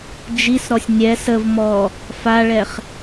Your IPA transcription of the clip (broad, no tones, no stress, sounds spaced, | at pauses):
d͡ʒ i s ɾ ɔ sʲ nʲ ɛ s ə v m ɔ | f a ɭ ɛ χ